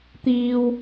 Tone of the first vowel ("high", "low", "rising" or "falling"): low